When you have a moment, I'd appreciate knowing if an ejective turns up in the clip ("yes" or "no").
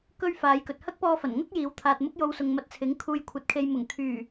no